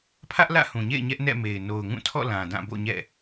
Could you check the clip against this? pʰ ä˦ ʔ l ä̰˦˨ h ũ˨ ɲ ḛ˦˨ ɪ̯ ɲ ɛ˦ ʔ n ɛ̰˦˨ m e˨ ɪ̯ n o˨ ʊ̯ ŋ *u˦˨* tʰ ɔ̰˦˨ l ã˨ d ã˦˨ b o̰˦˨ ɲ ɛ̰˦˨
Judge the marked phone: incorrect: ũ˦˨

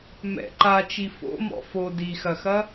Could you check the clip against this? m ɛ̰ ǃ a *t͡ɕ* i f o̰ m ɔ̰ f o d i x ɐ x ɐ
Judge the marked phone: incorrect: t͡ʃ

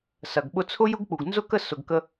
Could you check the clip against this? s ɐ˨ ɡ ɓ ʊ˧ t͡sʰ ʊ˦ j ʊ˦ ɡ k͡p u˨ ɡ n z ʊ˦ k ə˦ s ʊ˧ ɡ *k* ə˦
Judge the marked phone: correct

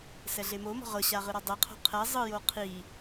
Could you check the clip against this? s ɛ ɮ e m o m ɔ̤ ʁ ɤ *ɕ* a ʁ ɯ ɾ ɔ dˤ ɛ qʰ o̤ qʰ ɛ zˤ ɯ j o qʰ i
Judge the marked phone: correct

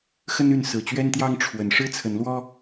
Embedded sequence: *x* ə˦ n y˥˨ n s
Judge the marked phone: correct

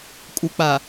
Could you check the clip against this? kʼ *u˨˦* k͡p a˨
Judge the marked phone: incorrect: u˨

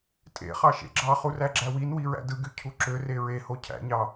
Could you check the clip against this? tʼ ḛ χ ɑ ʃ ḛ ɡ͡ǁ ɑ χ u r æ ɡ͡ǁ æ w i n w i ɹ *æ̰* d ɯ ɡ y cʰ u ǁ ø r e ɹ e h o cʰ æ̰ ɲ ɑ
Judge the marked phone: correct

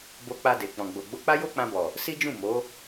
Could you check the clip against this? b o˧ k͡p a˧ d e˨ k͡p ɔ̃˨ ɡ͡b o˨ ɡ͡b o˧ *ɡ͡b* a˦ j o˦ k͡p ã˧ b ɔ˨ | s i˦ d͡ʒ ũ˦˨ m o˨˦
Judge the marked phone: incorrect: k͡p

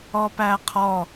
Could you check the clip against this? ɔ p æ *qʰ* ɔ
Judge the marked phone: correct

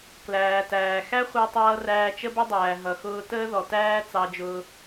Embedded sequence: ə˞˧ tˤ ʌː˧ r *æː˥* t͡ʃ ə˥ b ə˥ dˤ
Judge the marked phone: incorrect: æː˧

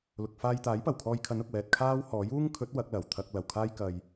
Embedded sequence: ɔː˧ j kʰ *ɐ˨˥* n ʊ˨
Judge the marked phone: correct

